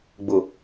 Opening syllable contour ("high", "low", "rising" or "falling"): low